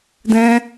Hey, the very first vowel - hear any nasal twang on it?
yes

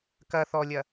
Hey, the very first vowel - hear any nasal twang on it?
no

